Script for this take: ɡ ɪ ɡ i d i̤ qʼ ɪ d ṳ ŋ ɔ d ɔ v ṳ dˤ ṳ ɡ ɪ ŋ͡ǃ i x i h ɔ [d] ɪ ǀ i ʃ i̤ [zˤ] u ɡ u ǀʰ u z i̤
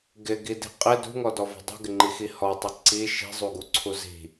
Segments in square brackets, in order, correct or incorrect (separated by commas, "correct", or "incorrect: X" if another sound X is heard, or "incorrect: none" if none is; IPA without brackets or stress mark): incorrect: tˤ, correct